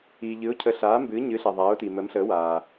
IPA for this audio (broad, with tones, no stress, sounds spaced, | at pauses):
iː˨ ʎ ɨ˨˥ ʊ̯ cʰ ə˨˥ ɬ aː˨˥ m b ɨː˨˥ ɲ ɨ˨˥ ɬ a˨ ðˤ aː˨˥ ʊ̯ t i˨ m ə˨˥ m ɬ ə˨˥ w aː˨